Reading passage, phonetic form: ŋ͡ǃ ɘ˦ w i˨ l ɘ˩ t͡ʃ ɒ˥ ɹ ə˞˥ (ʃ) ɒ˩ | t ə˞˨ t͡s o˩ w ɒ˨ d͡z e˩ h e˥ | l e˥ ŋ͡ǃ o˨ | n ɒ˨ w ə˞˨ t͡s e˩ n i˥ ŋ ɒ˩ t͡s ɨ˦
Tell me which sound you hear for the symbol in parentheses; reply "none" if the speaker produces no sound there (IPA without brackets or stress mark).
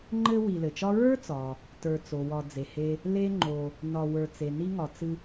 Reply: t͡s